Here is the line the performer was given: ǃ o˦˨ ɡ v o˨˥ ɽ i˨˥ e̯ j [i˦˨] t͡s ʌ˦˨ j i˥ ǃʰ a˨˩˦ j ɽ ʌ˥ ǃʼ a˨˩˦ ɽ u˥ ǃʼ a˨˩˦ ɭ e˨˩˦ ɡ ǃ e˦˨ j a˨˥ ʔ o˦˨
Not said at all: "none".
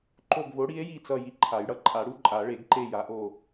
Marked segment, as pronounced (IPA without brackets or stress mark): i˦˨